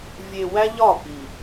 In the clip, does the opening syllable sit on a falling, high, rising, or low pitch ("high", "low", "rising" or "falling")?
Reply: low